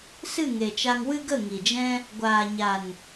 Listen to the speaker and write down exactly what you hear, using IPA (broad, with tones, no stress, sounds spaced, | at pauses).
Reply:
s ɨ˦˨ ŋ e˨ t͡ʃ a˧ ŋ w ɨ˦ ɡ ə˦˨ ŋ i˨ d͡ʒ ɛ̃˦ | ɡʷ aː˨ ɲ a˨ n